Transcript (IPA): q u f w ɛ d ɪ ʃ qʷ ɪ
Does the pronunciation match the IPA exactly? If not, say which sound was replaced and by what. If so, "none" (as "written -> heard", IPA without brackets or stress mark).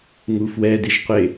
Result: q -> ŋ